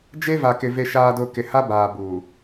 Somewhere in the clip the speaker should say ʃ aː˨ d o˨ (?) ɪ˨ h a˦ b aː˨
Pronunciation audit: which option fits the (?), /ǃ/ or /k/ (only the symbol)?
k